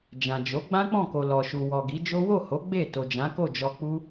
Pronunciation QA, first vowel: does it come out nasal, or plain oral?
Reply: nasal